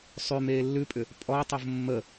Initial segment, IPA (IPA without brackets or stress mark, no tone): sˤ